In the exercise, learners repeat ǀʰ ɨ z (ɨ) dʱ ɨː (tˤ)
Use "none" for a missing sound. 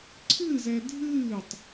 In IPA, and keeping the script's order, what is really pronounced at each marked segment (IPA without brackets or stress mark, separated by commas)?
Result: ɛ, tˤ